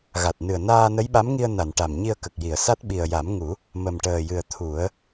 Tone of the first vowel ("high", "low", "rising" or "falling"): low